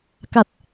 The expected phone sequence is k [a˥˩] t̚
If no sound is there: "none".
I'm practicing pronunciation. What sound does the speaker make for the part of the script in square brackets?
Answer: a˨˩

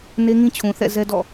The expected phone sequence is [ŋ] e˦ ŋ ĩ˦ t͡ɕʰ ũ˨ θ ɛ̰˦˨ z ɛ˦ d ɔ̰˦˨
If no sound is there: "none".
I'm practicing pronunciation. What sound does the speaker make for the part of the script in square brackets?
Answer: n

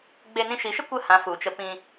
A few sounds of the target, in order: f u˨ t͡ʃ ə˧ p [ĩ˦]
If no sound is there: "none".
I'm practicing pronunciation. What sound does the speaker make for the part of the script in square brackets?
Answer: ĩ˧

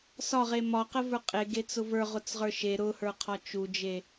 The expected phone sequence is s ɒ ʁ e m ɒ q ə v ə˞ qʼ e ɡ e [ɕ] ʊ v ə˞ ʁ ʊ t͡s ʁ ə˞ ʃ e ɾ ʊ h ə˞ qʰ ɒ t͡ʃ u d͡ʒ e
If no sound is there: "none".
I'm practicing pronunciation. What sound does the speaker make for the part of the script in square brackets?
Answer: t͡s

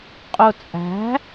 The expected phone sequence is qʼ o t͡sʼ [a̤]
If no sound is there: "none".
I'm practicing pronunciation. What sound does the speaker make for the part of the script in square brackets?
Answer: æ̤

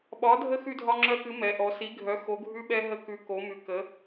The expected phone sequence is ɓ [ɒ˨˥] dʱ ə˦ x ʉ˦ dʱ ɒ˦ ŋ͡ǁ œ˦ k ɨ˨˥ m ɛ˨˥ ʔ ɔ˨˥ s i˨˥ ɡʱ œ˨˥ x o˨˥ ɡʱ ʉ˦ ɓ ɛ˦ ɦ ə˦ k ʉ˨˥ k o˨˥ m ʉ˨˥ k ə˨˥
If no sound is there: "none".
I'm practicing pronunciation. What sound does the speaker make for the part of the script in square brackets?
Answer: ɒ˨˥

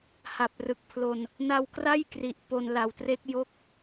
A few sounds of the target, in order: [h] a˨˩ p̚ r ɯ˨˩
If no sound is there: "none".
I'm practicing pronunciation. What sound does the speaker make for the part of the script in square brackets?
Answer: h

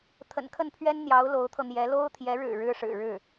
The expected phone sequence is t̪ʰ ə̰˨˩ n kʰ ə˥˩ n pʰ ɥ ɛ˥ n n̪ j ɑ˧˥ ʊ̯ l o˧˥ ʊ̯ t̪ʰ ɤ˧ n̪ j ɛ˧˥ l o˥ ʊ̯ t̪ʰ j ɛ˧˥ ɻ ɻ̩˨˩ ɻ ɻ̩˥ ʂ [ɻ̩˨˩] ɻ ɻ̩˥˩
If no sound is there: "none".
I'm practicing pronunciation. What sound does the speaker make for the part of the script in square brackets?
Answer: ɻ̩˨˩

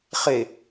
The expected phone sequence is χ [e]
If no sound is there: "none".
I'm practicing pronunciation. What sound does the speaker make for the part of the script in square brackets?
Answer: e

